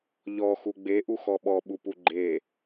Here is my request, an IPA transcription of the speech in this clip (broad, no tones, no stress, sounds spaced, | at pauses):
ʎ ɔ x u ɡ͡b e ʔ u x ɔ ɓ ɔ ɓ u p u ɡ͡ǃ e